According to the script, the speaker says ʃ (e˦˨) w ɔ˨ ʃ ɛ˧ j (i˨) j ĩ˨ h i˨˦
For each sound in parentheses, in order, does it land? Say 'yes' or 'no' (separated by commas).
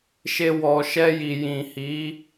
no, yes